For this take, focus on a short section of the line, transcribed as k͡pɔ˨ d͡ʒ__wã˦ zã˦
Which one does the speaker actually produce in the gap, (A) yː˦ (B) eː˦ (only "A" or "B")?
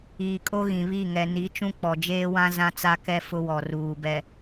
B